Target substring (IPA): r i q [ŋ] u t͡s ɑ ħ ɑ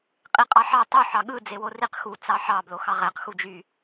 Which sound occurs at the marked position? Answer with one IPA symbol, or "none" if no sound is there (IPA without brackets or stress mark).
x